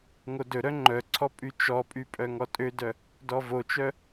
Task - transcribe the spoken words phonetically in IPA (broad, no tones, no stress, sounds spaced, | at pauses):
ŋ o d ɵ ɾ œ ŋ͡ǃ œ ǀʰ ɔ pʼ y t͡ʃ ɔ pʼ y pʼ œ ŋ ɔ tʼ ø d œ | d ɔ v o t͡ʃ œ